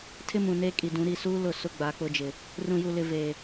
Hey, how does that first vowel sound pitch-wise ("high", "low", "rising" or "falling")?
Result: high